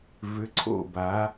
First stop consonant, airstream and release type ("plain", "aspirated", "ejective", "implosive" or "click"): click